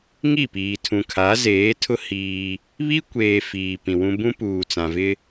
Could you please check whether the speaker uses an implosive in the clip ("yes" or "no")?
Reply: no